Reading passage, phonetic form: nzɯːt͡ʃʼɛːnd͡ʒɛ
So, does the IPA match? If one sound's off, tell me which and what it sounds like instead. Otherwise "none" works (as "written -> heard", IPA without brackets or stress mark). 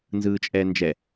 none